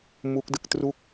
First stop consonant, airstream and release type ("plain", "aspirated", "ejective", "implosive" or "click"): plain